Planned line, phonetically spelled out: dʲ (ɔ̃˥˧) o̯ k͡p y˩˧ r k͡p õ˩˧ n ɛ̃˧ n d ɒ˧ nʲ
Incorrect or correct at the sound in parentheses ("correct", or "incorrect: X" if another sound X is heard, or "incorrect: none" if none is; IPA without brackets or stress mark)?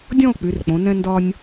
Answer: correct